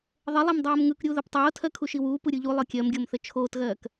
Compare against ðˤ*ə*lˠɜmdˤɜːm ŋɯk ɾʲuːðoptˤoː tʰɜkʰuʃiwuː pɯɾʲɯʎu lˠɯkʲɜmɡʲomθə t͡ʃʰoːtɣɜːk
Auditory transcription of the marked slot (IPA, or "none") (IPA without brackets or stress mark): ə